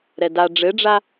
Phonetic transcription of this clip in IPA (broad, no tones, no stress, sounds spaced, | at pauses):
ɾ ɛ d a ɖ͡ʐ ɘ ɖ͡ʐ a